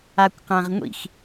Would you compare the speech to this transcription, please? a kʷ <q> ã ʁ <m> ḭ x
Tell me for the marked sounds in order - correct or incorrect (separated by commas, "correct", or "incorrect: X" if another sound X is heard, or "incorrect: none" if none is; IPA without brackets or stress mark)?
correct, incorrect: ŋʷ